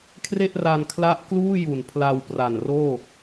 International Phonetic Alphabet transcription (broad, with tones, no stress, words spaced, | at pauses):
kʰre˥˩ʔra˧nkʰla˦˥ʔ kluː˥˩ju˨˩n pʰla˧wpra˨˩nroː˥˩